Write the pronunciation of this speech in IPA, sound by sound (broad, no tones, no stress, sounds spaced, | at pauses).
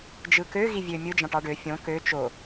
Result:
d͡ʒ ɯ k ø ɣ i vʲ ø mʲ ɯ d͡ʒ ɑ̃ ʈ ɑ ɖ ø fʲ õ k ø t͡ʃ o